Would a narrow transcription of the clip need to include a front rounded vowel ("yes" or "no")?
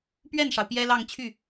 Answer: yes